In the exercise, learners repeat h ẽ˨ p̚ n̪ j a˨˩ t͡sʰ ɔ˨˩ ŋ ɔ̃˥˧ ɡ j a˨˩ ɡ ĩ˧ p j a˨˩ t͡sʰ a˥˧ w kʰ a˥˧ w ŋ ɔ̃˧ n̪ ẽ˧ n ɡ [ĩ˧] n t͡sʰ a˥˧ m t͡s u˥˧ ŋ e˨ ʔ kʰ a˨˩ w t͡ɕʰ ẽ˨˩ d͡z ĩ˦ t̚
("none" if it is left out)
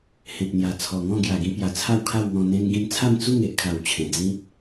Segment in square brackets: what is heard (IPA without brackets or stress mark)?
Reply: ĩ˧